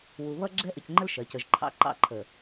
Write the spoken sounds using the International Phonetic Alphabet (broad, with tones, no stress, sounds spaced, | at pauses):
w u˨ β ʌ˦ ɡ͡ǁ ɛ˦ ʔ ə˨ c ŋ͡ǃ ə˦ l ʃ ɜ˨˦ c ə˨ ʒ ǃʰ ɑ̰˦ ǃ ɑ̰˦ ǃʰ ə˨